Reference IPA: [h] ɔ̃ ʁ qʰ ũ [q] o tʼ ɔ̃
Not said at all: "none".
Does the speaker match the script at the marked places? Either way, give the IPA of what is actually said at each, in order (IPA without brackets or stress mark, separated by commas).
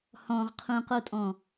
h, q